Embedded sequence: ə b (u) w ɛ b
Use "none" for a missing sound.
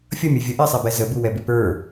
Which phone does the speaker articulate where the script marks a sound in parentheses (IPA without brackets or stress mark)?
u